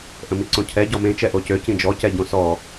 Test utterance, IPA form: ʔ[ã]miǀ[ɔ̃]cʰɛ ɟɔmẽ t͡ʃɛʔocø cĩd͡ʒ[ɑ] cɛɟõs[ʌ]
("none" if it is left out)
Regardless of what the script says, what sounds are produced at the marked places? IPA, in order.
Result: ə̃, õ, ɔ, ɔ

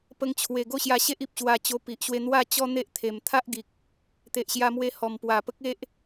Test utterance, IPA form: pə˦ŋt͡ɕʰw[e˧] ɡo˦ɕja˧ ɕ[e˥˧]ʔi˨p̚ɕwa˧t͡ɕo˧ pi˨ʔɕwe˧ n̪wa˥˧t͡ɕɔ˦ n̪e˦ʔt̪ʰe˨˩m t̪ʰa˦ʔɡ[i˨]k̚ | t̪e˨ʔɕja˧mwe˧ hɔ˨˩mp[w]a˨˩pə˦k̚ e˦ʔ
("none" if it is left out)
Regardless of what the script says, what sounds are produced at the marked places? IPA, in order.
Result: e˧, e˦, i˨, w

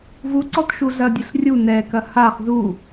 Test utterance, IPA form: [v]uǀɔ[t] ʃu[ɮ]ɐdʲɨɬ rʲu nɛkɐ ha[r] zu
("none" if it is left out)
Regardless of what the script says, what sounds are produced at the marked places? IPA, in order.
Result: v, t, ɮ, χ

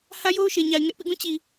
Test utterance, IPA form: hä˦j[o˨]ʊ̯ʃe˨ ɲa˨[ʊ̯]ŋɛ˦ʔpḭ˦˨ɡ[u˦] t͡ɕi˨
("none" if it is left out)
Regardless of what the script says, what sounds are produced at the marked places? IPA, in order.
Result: o˦, ɪ̯, ũ˦

